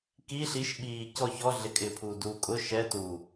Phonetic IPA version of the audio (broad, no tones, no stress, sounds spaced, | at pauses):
k i ɬ i ʃ ɓ iː c ɔ ç ɔ ɮ ɪ kʼ ɪː pʰ uː d uː kʼ ʊ ʃ ɛ t u